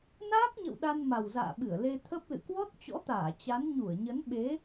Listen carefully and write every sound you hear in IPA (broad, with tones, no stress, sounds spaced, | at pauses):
n aː˦˥ k̚ ɲ ə̰˧˨ w ɗ a˧ n m a˨˩ w z a̰ː˧˨ ɓ ɨ˧˩ ə̯ l e˧ t̪ʰ ə˦˥ p̚ l ɨ̰˧˨ k w ɔ˦˥ t̚ t͡ɕ ɔ̰˧˥ t̪ aː˧˩ t͡ɕ a˨˦ n ɲ u˧˩ ə̯ ɲ ə˨˦ n ɓ e˨˦